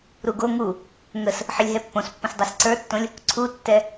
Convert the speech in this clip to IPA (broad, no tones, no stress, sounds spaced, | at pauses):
ɾ u ɡ o ŋ u | ŋ ə s | ħ ə lʲ ɦ ɛ pː õ s pː ə̃ s dˤ ɛ s ǀ ə˞ tː õ lʲ | ǀʰ u tː ɛ